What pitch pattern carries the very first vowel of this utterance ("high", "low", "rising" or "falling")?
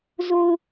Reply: low